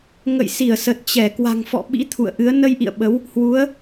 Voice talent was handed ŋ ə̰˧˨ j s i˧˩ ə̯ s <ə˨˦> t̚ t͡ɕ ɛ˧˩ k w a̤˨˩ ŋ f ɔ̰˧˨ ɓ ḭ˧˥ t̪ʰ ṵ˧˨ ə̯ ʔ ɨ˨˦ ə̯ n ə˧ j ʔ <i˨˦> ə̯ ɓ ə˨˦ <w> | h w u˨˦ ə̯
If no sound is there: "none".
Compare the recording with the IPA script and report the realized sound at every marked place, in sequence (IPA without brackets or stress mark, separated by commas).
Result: ə˨˩, ḭ˧˨, w